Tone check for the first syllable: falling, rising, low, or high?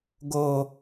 high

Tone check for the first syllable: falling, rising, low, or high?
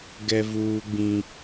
high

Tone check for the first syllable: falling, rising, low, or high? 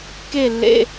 falling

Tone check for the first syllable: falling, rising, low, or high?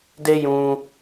high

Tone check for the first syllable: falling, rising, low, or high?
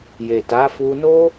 low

